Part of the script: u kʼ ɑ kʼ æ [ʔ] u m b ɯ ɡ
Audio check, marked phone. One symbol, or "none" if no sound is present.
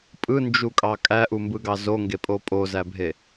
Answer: ʔ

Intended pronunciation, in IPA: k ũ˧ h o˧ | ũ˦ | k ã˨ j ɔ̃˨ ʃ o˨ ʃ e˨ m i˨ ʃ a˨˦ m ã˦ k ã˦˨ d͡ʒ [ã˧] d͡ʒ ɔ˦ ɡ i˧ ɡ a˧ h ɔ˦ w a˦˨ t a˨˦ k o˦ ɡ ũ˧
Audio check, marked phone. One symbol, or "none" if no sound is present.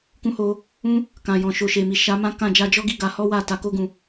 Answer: a˧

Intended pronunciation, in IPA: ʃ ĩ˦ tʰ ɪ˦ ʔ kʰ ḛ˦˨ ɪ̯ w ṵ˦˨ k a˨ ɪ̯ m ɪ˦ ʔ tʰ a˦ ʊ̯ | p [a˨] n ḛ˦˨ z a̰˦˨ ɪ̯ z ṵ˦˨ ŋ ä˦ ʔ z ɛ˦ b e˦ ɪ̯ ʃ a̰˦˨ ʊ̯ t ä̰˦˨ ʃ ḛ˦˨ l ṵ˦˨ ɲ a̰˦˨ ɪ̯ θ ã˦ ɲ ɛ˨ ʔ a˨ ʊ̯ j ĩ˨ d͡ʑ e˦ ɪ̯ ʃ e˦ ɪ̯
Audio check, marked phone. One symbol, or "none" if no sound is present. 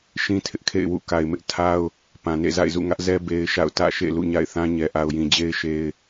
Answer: ã˨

